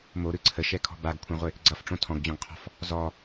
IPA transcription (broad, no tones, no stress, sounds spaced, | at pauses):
m o ɾ ɯ ǀʰ ə ʃ ɛ kʰ ɔ̤ b a ɡ kʷʰ ɛ̃ ʁʷ ɪ | ɡ͡ǀ ʌ f ʈ͡ʂ õ tʰ ɔ̃ ɡ d͡ʑ ɔ̃ ɡ qʰ ɔ̤ f | z ɔ